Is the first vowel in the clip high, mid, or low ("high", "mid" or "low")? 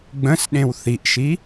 mid